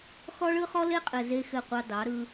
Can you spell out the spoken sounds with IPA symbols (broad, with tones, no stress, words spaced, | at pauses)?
xɔ˦ɭɯ˦ χɔ˦le˦qʼɘ˨ ze˦xɘ˦˨qʷɑ˦ dɑ˨˦ ɾɯ˦